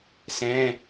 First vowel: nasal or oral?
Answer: nasal